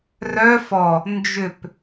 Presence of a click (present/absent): absent